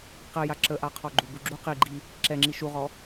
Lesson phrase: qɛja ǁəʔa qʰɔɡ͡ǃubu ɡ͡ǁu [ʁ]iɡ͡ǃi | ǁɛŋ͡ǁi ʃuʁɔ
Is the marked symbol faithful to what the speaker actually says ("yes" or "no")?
no